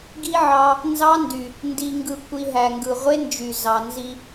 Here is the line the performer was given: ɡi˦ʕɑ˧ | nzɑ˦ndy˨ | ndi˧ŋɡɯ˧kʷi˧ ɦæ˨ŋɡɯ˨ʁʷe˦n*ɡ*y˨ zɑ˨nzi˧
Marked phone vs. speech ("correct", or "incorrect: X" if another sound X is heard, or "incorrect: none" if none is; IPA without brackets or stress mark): incorrect: d͡ʒ